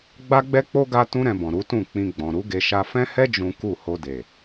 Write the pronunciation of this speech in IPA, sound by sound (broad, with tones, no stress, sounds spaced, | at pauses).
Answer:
ɡ͡b a˦ ɡ͡b ɛ˦ k͡p o˦ ɡ a˦ t ũ˦ ɾ ɛ̃˧ b ɔ̃˨ ɾ u˨˦ t ũ˦˨ k͡p ĩ˧ ɡ͡b ɔ̃˨ ɾ u˨˦ ɡ e˧ ʃ a˧ f ɛ̃˦ h ɛ˦ d͡ʒ ũ˦ k u˦˨ h o˧ d e˨